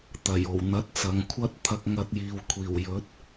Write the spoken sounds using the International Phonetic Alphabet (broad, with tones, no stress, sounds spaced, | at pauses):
t̪ ɐ˨˩ j o˨˩ w n̪ ɐ˨˥ t̚ t͡s ɐ˨ ŋ kʷʰ ɐ˥ t̚ t̪ʰ ɐ˧ k̚ ŋ ɐ˧ t̚ j iː˨ w kʷʰ iː˨˩ w j ɵ˨˥ t̚